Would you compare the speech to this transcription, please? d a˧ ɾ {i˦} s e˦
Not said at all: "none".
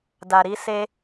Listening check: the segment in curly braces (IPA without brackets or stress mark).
i˦